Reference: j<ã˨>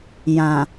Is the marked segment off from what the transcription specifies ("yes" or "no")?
no